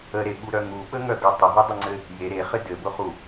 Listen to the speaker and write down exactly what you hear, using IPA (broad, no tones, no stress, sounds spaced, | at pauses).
ə ɾ e ɓ u ɾ œ ŋ u ɓ ə ŋ œ ɡ œ tˤ ə ɦ ʊ dˤ ʊ ŋ͡ǀ ɘ | j e ɾ e χ ɘ d ɘ b ʊ χ u